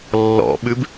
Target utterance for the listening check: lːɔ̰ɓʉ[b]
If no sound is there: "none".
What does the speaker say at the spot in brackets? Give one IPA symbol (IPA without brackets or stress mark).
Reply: b